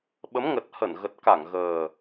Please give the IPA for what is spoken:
ɓə˨˦mŋə˨˩t̚hə˧˩n ɣə˨˩t̚ka˧˩ŋɣəː˨˩

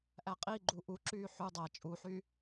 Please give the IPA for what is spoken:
ʔæqʼiɡ͡ǃu ʔuǁyː ħʉ dˤæ t͡ʃʼuħy

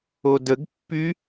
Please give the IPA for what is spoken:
odəɡ pːy

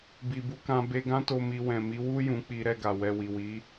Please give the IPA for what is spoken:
bi˨bu˧kã˧ be˧ɡã˦to˧ mi˧ wɛ̃˨mi˨˦wu˦ jũ˧k͡pi˧ɾɛ˧ ɡa˨wɛ˧ wi˨wi˨˦

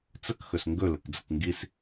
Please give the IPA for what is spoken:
t͡səkxɵs ŋɡɵləkd͡zək ŋɡis

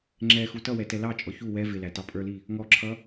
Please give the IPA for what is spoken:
ŋ͡ǁɛxu tʌwɛ tɛlɑt͡ʃʼɔ çu wɛ vɪlæ tɑpʼə˞li | ŋɔǁʰʌ

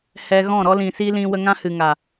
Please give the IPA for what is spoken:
hɛ˨ ɣɔ̃˦˨ɾɔ˦lĩ˨si˦ lĩ˧wə˧ŋã˦ hɨ˨ŋa˨

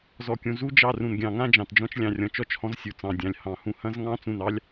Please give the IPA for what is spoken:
zɔ˨kʲũ˨ zu˦d͡ʒɑ˦˨ rũ˨nɡʲɑ̃˨ŋã˦ d͡ʒɑ̃˨td͡ʒɔ̃˦t͡ʃ lʲɑ̃˨rʲɔ̃˨t͡ʃɔ˦t͡ʃhɔ̃˦z sʲu˨t͡sɑ̃˨dʲɑ̃˨lʲ hɑ̃˨hũ˦ hɐ̃˦zŋɑ̃˦ t͡sũ˦˨nɑ˦lʲ

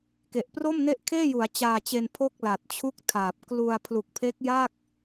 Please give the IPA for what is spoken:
ke˨˩ʔpro˥˩mne˥˩ʔ kʰeː˥˩ju˩˦a̯ t͡ɕaː˧t͡ɕe˧n pʰo˥˩k̚la˨˩t̚t͡ɕʰu˥˩k̚tʰaː˨˩p̚ klu˧a̯ pʰlu˨˩k̚pʰe˦˥k̚ja˥˩k̚

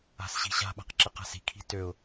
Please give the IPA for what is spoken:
a̤sɕi̤ɕa̤ɓa̤q ǁəqa̤si̤kʰi̤ tøʊ̯

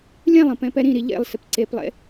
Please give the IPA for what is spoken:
lʲɛ̃lˠə̃ pɛ̃pɛɾĩɾi ʎḛlˠ sɪpǀeplˠḛ

